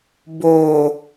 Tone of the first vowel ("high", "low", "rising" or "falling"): low